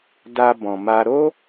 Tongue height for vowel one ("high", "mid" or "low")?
low